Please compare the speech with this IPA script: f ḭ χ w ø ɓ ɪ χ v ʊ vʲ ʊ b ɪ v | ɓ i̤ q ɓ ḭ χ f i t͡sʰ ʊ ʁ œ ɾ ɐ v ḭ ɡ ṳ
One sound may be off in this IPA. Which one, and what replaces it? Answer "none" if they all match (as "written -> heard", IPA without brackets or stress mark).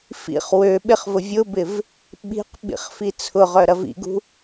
none